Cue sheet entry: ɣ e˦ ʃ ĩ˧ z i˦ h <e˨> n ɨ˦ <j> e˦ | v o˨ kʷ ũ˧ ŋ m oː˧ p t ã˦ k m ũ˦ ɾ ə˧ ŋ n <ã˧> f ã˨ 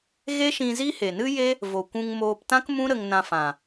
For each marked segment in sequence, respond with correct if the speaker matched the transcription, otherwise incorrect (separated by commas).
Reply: correct, correct, correct